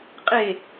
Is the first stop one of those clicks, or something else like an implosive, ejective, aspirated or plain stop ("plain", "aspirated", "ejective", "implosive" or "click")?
ejective